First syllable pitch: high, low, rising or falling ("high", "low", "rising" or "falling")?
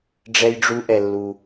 high